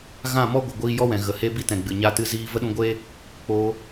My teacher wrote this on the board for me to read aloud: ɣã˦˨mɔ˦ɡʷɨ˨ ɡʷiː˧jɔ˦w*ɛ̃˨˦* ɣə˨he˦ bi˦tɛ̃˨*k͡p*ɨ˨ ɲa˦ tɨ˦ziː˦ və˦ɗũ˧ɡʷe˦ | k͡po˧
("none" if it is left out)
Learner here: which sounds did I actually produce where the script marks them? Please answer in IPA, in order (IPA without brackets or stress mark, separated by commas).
ɛ̃˨, ɡ͡b